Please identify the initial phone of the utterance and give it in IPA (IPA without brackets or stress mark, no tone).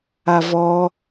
a